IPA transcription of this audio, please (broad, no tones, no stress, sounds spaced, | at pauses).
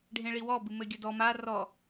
ɖʱ ẽ ɭ i w ɔ b ɨ m ɘ ɡʲ ɐ d ɔ m a r ɔ